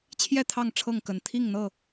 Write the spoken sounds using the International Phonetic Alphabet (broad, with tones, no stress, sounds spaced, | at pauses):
t͡ɕʰ j ɛ˥˨ t̪ʰ ɑ˥˨ ŋ ʈ͡ʂʰ ɤ˥˨ ŋ k ə˨˩ n t̪ʰ i˥˨ ŋ n̪ ɤ˥˨